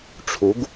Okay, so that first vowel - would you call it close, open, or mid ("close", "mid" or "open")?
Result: close